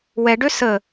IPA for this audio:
w ɛ ɖ ø s ə

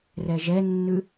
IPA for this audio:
r ɛ ʒ ɛ nː ʉ

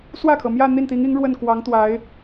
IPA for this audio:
s w ä˥˩ kʰ ɤ˩ m j ä˥˧ n̪ i˥˩ n t̪ i˧˥ ŋ i˧˥ ŋ ɻ w ə˥˩ n k w ɑ˧˥ ŋ t̪ w a˧˥ ɪ̯

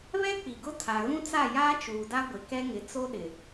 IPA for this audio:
β ɛ˦ k͡p i˨ ɡ ʊ˦ tʰ a˨ ɣ ũ˦ t͡s a˦˨ j aː˦ t͡ʃ uː˨ d a˦ ɡʷ ɪ˨ k ɛ˦ ŋ ɪ˨˦ t͡s o˦ ɗ ɪ˨

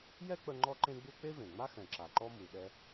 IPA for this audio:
j ɛ˥ k͡p ə˧ ŋ͡ǃ ɔ˥ ǃ ẽ˥ ɡ͡b u˥ k͡p e˥ v ẽ˩ ŋ͡m a˥ x ɛ̃˩ ǁ a˩ ǃ ɔ˥ m u˩ ɗ ɛ˧

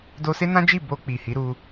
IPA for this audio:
d o˧ s e˦ n ã˦ d͡ʒ i˦˨ b o˧ k͡p i˨ h i˨˦ ɾ u˧

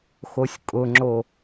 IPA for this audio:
x o sʲ kʼ ʊ ŋ͡ǁ o

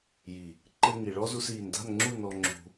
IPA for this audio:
j i˨ | ǃ ɘ˧ ŋ i˨ ɭ ɔ˦ z u˧ s iː˨ n d a̤˦˨ n ŋ͡ǁ u˦˨ n ɔ˧ ŋ͡ǁ ṳ˧

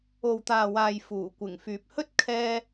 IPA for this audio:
o˨ w t̪ aː˨ w aː˨ j f uː˨˩ kʷ ɪ˨˩ ŋ f yː˨ p̚ h ɵ˥ t̚ kʰ ɛː˥

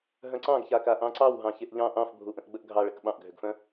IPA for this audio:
ɦ œ̃ ǀ ɑ̃ ɡ ç a k a ʔ ɑ̃ ǀ ɑ w ɦ ɑ̃ ç e ʔ ʎ ɑ̃ ʔ ɑ̃ f bʱ u ʔ ə̃ ʔ ɡ͡b ə ʔ ɡʱ ɑ ɭ ə k ɓ ɑ̃ ʔ ɡʱ ʏ ɡ f œ̃

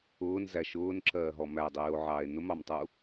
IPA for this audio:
ʊː n z æ ʃ ʊː n ǁ ɜː ɦ ɔ m æ dˤ iː o̯ ʕ ɑː e̯ n ʊ m ɑ m tˤ u

